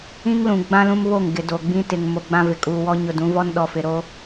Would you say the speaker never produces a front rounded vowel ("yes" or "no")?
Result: yes